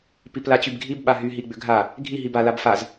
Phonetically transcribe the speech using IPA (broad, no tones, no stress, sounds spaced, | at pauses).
p i p l a t͡ɕ y b ɡʱ i b ɓ a ɦ y ɦ i ɡ͡b ʏ ɡʱ a | ɡʱ i ɦ i b a l a b f a z